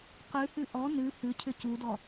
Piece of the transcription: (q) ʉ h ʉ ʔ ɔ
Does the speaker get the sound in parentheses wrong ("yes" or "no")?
no